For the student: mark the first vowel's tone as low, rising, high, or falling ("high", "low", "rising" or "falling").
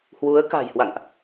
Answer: rising